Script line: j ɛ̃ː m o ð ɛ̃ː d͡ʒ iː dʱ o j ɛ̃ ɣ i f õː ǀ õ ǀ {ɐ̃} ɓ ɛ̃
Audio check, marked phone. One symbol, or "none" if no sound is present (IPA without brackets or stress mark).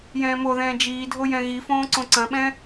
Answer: ɐ̃